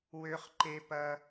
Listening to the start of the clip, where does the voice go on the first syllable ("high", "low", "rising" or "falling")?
high